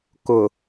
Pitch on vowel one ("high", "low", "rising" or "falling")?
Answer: low